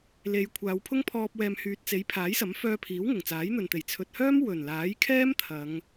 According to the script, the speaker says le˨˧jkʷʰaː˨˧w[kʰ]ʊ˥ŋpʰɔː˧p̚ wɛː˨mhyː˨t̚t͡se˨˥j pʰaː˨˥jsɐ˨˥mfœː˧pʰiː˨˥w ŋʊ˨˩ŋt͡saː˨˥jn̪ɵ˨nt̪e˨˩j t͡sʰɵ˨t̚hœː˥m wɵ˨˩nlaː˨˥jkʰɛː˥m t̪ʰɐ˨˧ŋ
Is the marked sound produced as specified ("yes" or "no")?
no